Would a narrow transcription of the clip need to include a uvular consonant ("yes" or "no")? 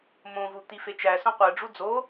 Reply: yes